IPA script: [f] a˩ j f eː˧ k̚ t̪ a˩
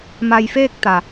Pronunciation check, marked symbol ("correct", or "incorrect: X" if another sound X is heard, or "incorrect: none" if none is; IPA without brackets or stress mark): incorrect: m